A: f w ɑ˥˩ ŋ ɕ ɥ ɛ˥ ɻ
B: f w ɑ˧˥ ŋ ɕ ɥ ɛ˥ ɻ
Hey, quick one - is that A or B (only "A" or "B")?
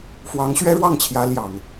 B